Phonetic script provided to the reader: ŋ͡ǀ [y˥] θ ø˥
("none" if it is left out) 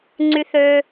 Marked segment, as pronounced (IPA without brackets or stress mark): y˥